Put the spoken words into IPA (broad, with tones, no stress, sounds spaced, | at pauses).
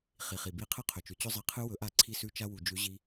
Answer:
χ i˨ χ i˨ b i˧ qʰ ɨ˦ qʰ ɵ˨ t͡ʃ ʉ˨ t͡ɕ ɵ˦ zˤ i˧ qʰ ɨ˧ w ɵ˨˦ ʔ a˧ ǀʰ i˧ s ʉ˧ t͡ʃ a˧ w u˨ d͡ʒ ʉ˨˦ ʑ i˧